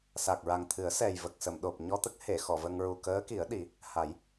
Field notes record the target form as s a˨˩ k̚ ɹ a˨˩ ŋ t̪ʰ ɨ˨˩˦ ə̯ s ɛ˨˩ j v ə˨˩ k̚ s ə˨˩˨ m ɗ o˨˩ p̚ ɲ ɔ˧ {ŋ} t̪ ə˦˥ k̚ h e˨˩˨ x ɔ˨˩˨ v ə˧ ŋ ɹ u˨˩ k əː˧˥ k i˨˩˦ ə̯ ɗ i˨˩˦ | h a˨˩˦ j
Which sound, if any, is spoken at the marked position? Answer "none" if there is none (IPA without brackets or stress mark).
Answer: none